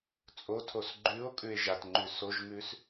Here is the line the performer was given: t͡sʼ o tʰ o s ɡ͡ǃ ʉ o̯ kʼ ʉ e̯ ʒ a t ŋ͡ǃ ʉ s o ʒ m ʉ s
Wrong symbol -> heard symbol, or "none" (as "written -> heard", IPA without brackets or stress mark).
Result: none